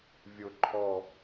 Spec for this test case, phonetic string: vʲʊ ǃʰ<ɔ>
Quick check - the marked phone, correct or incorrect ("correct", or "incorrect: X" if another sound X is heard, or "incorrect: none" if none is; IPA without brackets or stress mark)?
correct